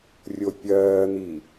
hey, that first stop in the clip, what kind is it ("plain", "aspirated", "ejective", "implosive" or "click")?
plain